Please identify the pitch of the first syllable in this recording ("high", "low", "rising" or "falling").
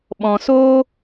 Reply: low